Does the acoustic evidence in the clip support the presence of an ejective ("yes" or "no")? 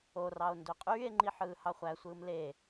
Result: yes